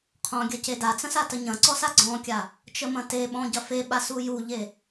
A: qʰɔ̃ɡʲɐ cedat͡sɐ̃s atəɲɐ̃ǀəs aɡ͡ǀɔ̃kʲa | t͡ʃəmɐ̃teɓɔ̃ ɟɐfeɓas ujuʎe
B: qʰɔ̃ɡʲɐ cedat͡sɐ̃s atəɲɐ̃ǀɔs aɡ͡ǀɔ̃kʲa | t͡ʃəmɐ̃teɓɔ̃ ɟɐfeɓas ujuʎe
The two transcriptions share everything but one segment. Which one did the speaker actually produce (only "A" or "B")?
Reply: B